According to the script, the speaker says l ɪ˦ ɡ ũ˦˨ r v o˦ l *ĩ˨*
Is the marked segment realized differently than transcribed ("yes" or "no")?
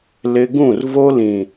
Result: no